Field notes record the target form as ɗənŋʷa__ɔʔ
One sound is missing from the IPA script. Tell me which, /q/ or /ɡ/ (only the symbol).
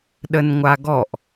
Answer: ɡ